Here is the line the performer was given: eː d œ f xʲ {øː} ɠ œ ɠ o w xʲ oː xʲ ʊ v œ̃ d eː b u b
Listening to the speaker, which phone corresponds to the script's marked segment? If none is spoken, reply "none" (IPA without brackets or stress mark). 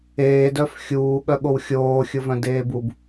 uː